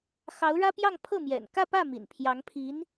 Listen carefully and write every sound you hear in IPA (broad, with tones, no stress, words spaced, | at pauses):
xɑ˧˥ʊ̯ɻä˥pjɑ˥˧ŋ pʰɤ˥˩ mjɛ̰˨˩n kä˥˧pä˥˩ mḭ˨˩npʰjɑ˧˥ŋ pʰi˧˥n